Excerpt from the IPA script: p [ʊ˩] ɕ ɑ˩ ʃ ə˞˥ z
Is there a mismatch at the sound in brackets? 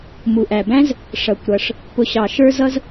no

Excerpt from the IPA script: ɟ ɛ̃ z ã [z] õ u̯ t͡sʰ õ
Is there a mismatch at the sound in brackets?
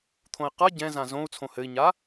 no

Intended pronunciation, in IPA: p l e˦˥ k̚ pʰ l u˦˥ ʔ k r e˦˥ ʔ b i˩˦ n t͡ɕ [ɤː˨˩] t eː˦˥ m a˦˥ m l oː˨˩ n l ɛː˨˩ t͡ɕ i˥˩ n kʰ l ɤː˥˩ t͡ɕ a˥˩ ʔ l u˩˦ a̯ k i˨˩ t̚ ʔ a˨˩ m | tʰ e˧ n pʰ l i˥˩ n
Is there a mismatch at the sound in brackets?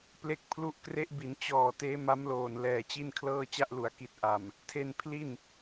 yes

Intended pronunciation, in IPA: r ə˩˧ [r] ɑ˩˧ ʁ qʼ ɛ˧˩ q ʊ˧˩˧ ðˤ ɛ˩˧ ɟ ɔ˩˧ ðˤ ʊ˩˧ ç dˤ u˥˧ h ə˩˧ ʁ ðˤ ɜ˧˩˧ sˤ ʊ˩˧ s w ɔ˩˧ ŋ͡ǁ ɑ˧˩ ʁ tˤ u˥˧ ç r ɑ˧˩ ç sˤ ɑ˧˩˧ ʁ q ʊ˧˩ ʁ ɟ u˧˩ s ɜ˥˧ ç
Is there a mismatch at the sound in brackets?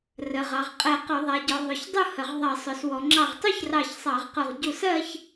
yes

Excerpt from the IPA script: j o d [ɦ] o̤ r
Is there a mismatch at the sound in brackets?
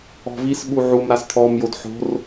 yes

